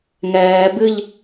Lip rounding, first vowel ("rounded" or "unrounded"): unrounded